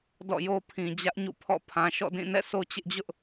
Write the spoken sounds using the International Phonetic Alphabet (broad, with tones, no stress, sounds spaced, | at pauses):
d ɔ̰˦˨ j o˦ pʰ ĩ˨ d͡ʑ ä˦ ʔ ɲ ṵ˦˨ pʰ ɔ̰˦˨ pʰ ã˨ ʃ ɔ̰˦˨ d ĩ˦˨ n ɛ̰˦˨ s o˦ t͡ɕ ɪ˦ ʔ d͡ʑ ʊ˦ ʔ